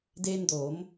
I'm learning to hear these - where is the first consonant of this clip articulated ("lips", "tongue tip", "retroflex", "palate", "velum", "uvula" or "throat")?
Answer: tongue tip